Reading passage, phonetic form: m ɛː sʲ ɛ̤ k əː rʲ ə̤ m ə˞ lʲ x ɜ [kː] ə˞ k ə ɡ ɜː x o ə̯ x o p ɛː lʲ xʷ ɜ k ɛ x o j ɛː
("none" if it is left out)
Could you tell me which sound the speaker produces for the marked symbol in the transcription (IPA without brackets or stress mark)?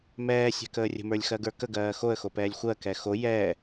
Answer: ɡ